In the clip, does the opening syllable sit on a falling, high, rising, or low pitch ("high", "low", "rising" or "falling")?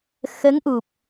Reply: rising